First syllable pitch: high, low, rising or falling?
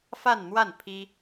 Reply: falling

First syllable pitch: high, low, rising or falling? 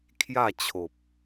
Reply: falling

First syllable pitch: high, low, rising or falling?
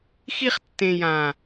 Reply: high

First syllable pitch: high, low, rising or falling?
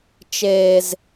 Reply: high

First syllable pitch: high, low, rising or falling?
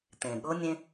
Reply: low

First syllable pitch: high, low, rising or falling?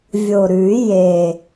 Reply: low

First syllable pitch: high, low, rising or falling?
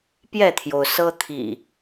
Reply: falling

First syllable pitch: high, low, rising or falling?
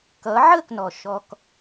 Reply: rising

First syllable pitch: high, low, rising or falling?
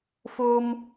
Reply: high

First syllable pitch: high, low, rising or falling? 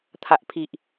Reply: low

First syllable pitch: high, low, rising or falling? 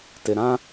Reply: low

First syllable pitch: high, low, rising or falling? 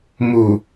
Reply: low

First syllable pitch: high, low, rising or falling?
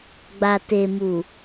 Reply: low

